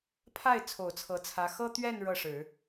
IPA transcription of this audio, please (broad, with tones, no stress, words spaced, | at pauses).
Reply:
pʰa˥˩ɪ̯ t͡sʰo˨˩ʊ̯t͡sʰɤ˧˥t͡sʰä˧˥ xɤ˥t̪ɥɛ˥˧n ɻɤ˥˩ʂɻ̩˨˩˦